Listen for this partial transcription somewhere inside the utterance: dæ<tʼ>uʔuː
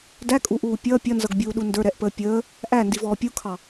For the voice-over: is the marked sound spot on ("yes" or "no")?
no